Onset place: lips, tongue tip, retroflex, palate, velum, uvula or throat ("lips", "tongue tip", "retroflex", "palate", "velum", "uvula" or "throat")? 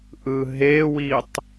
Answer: throat